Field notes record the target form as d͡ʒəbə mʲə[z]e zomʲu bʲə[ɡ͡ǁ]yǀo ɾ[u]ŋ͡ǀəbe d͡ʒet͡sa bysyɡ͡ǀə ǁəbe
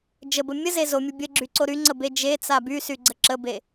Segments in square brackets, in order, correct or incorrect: correct, correct, incorrect

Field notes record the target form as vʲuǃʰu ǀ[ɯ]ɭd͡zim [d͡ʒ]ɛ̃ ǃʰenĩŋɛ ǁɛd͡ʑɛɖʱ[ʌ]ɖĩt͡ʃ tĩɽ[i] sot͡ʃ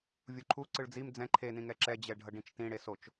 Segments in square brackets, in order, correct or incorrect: correct, incorrect, correct, incorrect

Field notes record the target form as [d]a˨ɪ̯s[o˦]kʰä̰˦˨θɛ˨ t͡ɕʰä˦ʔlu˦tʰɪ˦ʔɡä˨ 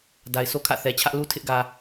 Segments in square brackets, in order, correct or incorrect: correct, correct

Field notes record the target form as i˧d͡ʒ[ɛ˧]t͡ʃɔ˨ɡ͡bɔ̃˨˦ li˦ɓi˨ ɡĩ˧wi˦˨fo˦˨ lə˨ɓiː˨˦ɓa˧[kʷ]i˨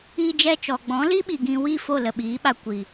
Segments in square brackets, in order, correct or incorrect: correct, correct

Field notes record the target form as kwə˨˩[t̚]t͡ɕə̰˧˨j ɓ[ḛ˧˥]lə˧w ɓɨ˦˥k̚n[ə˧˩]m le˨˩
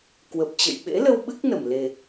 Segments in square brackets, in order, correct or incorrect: incorrect, correct, correct

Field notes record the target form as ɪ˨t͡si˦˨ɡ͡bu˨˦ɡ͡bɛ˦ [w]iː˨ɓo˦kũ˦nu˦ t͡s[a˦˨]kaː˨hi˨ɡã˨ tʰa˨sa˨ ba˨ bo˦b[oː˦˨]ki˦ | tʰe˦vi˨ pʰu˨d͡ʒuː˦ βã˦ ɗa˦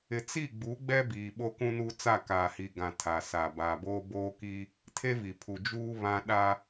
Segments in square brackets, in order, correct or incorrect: incorrect, correct, incorrect

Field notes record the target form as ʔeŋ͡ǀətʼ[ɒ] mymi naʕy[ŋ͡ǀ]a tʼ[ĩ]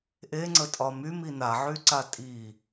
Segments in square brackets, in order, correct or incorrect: correct, incorrect, incorrect

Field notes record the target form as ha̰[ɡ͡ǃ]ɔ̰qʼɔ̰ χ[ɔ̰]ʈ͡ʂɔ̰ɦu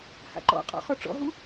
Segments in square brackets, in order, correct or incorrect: incorrect, incorrect

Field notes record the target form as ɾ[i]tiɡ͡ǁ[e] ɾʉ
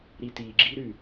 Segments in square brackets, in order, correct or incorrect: correct, incorrect

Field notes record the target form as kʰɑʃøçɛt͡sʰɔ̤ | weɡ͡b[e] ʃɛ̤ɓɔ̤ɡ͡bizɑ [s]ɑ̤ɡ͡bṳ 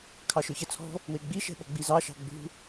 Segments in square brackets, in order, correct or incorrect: incorrect, incorrect

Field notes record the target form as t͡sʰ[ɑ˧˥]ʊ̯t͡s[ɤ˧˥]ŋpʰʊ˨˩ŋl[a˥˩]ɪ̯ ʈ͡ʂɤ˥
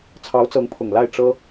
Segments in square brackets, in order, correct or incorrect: correct, correct, correct

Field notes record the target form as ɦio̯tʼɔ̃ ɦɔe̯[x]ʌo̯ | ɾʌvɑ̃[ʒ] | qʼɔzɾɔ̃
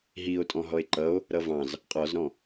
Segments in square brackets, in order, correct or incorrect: incorrect, incorrect

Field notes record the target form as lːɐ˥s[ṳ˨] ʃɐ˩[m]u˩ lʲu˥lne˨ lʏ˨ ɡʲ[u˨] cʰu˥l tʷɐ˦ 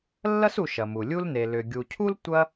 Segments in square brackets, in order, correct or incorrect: incorrect, correct, correct

